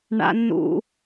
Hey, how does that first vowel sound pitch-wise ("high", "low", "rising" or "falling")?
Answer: high